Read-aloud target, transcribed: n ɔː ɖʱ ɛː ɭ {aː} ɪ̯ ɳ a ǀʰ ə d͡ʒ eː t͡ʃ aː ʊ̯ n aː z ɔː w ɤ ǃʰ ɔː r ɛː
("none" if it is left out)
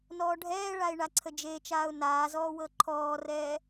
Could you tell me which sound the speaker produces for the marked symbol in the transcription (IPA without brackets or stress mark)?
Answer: a